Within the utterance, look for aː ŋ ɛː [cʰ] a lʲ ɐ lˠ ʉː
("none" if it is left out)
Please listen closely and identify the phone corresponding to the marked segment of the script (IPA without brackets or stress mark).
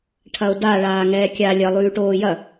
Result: kʲ